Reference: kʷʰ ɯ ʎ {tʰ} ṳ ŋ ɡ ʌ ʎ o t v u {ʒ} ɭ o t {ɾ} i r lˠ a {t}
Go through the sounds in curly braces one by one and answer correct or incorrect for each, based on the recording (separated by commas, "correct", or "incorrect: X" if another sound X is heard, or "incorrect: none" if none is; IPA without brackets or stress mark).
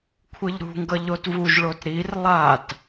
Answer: incorrect: ɾ, correct, correct, correct